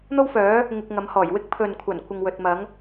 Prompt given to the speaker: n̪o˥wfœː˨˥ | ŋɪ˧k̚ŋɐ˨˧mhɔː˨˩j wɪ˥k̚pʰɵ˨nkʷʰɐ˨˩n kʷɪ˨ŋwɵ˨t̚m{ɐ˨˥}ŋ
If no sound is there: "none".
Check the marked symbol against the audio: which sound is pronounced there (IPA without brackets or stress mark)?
ɐ˨˥